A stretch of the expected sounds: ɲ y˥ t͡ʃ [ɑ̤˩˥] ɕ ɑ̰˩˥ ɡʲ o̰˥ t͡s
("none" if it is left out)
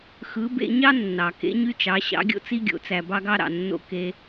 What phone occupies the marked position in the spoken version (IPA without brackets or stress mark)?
ɑ˩˥